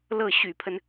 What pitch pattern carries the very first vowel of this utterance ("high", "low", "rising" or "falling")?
falling